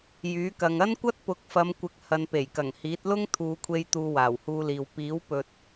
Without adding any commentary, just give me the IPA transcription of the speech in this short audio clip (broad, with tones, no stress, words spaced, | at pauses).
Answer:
jyː˨˥kɐ˨ŋ ɐ˥nkʷɐ˥t̚pʊ˨˥k̚ fɐ˨˧mkʷɪ˨˥k̚ hɐ˨˧npe˨˩jkɐ˨˩ŋhiː˨˥t̚ lʊ˥ŋt̪ʰuː˨˧kʷʰe˧j t̪uː˧waː˨˩whuː˧liː˨w piː˨˥w pɵ˨t̚